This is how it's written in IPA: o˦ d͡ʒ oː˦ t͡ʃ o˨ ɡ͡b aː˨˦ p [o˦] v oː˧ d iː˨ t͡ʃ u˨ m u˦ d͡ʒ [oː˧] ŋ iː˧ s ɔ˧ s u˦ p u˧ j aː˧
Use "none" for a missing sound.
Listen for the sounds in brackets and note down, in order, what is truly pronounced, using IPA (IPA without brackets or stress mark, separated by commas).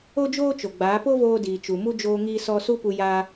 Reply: o˦, oː˧